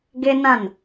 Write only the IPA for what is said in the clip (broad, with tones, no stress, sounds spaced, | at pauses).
ɡ e˦ n ã˦˨ n